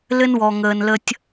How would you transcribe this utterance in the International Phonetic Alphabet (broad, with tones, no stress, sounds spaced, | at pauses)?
l ɘ˦ n w ɔ˨ ŋ əː˨ n l ə˦ tʲ